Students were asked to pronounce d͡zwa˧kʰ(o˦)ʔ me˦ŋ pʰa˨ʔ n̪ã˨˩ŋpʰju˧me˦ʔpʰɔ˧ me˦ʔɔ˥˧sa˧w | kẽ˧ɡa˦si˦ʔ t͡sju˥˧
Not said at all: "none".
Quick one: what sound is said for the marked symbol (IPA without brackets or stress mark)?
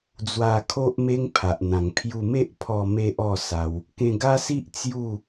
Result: o˦